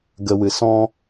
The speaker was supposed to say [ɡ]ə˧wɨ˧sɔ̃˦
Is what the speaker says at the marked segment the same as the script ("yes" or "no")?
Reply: yes